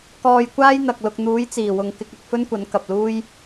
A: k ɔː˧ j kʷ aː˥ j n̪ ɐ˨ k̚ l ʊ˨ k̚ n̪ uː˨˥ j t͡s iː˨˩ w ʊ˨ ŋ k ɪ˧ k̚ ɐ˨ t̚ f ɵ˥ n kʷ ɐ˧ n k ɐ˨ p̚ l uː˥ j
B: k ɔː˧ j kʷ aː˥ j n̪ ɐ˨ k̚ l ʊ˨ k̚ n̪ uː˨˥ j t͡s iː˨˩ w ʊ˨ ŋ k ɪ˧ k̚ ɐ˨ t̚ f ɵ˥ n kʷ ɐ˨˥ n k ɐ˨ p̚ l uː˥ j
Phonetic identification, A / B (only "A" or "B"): B